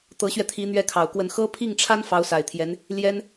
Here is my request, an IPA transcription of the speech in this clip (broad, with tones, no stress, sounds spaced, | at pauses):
t̪ ɤ˧˥ ɕ ɥ ɛ˧ t̪ʰ i˧˥ n̪ ɥ ɛ˥ kʰ ɑ˨˩ ʊ̯ k w ə˥˩ n x ɤ˥ pʰ i˥˩ ŋ ʈ͡ʂʰ a˥ n f ɑ˧˥ ʊ̯ s a˨˩ ɪ̯ t̪ʰ j ɛ˧˥ n | l j ɛ˥ n